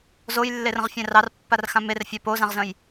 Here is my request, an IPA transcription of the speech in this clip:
zojlːerə̃ʁfʲɛ̃ rɑrpːarxã merfʲa pozãʁzə̃j

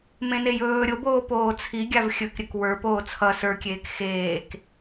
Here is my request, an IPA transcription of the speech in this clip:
mẽnejɵː ɾʲoboː poːt͡sʰi ɡʲavxʲɵkɾʲɵk wə˞poː t͡sʰʌ sə˞kʲeːk xeːk

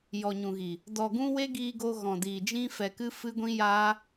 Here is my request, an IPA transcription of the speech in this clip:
jɔ˨ɲũ˨ɣi˨ | dɔ˨ɡũ˧ we˦ɡiː˧ɡo˧ ɣɔ̃˨diː˨d͡ʒĩ˦ fɛ˧kɨ˦fɨ˦ɡʷĩ˦ jaː˦

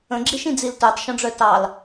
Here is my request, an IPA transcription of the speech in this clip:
ə̃ɡ͡ǁiʃĩ d͡ziltœtˤʃɔ̃ɖ͡ʐœ tɑl

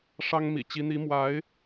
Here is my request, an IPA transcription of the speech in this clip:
ʂɑ˥ŋmḭ˨˩t͡ɕi˧˥ n̪i˧˥mwa˧˥ɪ̯

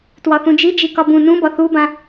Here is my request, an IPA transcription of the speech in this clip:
twɒθũd͡ʒi d͡ʒikɒbũ nũbɒ θubã

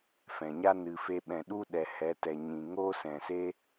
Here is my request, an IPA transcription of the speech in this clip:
fɛ̃˨ɲa˦ nɨ˨fe˧ɓɛ̃˨ ɗu˦ɗɛ˨ hɛ˨˦tɛ˨ɲĩ˨ ŋo˦sɛ̃˨se˦

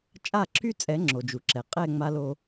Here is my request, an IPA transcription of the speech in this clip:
t͡ʃʼa˦˨ǁʰy˦t͡sʼɛ˨˦ ŋ͡ǁo˨d͡ʒu˨ǁɛ˨ qʼɛ˦˨ ŋ͡ma˦lo˦

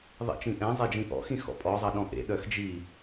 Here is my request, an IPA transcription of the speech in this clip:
ðˤḭt͡ʃĩʔɛ̃ zˤed͡ʒĩʔɔ̰ xĩxɔ̰pʼɔ zˤɐɗɔ̃ʔḛ ɗœxd͡ʒi

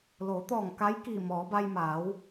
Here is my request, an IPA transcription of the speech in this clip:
loː˩˧t̪ɔː˧˩ŋ ka˧˥jkiː˧˩mɔː˩˧ba˧j maː˩˧w

